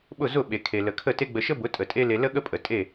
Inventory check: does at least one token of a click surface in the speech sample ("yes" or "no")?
no